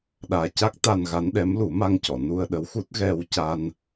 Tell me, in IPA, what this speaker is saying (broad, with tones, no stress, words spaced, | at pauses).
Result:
ɗaː˨˩ca˦˥k̚ t̪a˧nɣa˧˥n ɗɛ˧˥mlu˨˩˦ma˧ŋcɔ˨˩˨ nu˧ə̯ɗə˧˥wxu˦˥t̚ ɣɛ˧wca˧n